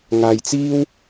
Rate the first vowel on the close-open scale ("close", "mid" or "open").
open